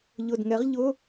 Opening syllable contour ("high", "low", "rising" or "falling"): low